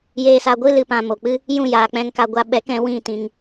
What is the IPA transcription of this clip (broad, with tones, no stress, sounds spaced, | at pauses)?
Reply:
j eː˧ s a˧ ɡʷ ɨ˦ l ɨ˧ p ã˧ m o˨ k͡p ɨ˦ | j ũ˦˨ j aː˨ k͡p ɛ̃˧ ŋ k a˧ ɡʷ a˧ ɓ ɛ˨˦ k ɛ̃˨˦ w ĩ˦˨ t ĩ˧ ŋ